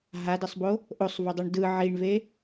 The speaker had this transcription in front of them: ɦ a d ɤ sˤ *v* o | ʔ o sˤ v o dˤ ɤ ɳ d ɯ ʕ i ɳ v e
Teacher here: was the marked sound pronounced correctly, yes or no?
no